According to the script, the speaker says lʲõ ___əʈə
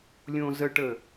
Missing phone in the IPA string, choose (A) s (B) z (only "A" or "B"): B